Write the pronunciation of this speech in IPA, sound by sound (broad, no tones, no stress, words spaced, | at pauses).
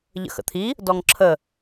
ʎə̰xə̰t̪ʰi | dɔŋǁʰə